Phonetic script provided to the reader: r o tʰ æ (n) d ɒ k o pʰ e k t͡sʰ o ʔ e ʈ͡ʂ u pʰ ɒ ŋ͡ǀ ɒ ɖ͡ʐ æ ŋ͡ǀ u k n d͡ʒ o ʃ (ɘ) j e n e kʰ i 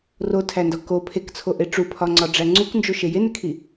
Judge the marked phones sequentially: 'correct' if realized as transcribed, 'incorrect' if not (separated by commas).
correct, incorrect